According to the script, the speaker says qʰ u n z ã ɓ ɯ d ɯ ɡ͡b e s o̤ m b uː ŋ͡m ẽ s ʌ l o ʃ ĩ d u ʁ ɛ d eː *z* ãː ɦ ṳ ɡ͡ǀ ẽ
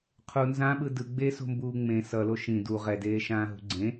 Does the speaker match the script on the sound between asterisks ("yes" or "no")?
no